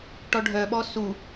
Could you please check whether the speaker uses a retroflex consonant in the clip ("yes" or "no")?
yes